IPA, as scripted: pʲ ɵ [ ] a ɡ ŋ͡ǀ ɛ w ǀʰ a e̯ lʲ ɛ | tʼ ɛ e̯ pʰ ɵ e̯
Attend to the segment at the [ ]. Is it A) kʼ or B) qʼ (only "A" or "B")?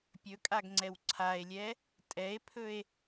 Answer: A